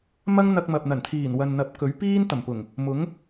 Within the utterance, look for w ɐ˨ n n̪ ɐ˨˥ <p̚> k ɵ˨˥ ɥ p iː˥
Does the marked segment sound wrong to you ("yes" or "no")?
no